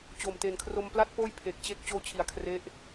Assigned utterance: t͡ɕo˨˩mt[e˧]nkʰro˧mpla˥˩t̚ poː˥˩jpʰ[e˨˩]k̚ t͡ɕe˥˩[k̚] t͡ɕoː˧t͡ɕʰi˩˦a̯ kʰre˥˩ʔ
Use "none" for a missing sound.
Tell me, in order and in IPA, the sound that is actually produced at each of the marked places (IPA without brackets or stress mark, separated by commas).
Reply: e˨˩, e˨˩, k̚